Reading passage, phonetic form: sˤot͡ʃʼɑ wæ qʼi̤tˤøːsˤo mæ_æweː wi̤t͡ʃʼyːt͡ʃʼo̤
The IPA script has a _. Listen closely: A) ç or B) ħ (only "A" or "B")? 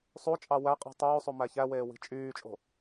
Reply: A